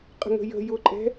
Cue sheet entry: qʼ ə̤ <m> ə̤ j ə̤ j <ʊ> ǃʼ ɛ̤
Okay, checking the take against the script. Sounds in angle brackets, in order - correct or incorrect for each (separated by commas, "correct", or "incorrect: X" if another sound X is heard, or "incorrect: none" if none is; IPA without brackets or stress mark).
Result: incorrect: ŋ, correct